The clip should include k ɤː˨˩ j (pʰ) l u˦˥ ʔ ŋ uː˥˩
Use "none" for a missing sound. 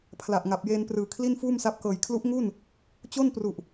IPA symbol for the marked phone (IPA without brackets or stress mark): kʰ